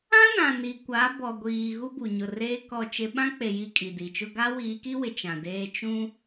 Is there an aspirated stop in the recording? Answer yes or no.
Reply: no